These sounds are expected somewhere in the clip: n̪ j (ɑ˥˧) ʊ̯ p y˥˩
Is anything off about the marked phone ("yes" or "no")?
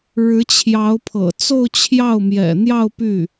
no